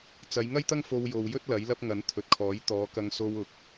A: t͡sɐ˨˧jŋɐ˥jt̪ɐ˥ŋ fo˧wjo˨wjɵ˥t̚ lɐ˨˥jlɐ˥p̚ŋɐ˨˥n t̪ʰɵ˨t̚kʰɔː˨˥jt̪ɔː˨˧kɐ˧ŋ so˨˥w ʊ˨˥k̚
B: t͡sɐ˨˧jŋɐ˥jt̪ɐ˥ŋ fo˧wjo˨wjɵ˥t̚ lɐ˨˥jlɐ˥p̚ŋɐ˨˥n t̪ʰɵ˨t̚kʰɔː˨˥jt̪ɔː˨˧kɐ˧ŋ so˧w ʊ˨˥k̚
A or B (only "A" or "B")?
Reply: B